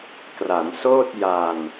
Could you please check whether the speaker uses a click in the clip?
no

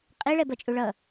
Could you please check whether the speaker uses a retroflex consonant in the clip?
yes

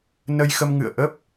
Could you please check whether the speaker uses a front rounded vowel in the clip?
no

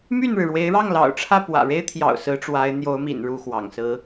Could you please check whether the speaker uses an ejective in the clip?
no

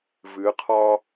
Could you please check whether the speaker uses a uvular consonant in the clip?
yes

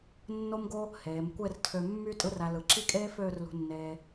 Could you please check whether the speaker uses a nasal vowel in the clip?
no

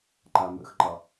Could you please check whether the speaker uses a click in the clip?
yes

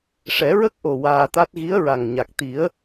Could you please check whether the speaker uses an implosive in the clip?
no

